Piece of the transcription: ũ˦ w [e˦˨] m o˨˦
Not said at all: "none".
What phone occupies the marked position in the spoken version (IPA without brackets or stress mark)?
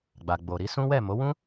ɛ˦˨